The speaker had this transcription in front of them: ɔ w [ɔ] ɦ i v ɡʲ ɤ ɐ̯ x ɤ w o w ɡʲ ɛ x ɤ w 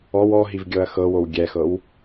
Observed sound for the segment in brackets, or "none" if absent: ɔ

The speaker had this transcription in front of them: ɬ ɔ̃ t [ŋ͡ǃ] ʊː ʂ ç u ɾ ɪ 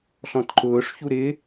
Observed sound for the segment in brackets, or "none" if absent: ǃ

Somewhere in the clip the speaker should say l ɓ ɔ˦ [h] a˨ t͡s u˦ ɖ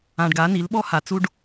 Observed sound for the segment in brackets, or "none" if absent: h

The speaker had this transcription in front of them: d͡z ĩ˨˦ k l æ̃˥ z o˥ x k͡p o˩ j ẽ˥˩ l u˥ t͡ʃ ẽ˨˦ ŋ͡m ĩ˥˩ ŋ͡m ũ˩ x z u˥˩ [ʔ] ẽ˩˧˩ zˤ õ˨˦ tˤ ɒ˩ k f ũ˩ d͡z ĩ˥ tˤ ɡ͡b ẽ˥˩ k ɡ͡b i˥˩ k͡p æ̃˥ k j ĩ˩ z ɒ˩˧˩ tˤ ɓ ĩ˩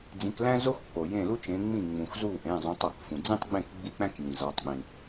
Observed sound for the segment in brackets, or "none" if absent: ʔ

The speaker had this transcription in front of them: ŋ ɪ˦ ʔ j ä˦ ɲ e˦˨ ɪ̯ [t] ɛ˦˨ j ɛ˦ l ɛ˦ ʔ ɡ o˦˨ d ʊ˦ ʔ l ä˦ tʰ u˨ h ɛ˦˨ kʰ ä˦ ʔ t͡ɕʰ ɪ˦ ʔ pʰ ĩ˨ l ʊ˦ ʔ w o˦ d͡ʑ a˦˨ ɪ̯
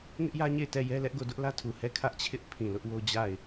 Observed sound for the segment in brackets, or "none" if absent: t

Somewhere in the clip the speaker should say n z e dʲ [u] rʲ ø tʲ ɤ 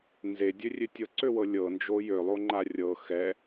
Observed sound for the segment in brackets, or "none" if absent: ø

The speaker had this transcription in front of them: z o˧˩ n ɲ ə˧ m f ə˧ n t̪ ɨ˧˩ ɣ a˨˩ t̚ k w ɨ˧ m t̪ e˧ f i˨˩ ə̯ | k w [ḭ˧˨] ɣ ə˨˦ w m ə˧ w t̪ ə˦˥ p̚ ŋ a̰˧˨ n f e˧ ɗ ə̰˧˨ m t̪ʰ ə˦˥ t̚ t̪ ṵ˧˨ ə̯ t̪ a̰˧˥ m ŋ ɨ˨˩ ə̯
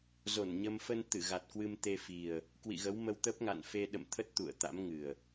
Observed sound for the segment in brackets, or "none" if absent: ḭ˧˨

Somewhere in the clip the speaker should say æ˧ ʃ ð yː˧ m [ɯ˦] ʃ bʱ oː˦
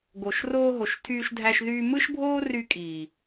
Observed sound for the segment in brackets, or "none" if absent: ɯ˦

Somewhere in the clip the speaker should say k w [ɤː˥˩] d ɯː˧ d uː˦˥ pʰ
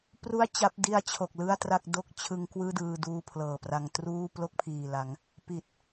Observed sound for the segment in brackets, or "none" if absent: ɯː˥˩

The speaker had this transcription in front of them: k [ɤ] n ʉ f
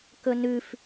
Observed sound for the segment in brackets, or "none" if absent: ɵ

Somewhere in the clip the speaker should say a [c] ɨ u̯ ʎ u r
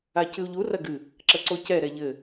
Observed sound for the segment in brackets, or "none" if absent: c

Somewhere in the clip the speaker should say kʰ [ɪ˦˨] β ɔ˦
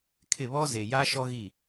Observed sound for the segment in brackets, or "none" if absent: ɪ˦˨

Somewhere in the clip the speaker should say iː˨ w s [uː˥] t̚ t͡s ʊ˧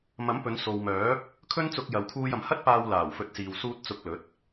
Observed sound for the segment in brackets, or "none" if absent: uː˧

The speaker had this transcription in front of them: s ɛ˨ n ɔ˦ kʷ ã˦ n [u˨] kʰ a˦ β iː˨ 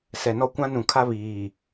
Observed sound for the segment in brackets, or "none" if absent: ũ˨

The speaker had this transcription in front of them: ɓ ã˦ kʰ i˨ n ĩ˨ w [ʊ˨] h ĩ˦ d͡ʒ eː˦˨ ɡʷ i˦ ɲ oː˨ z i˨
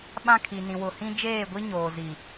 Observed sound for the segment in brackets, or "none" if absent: ʊ˨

